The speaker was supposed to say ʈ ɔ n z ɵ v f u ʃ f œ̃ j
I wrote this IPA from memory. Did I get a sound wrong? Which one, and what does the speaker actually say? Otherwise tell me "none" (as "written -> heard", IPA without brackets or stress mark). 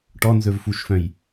none